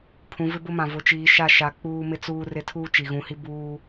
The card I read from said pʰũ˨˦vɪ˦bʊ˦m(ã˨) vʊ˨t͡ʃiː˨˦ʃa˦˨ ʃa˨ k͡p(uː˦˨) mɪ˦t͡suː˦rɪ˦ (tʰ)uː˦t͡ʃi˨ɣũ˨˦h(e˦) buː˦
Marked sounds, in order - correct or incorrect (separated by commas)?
correct, incorrect, correct, incorrect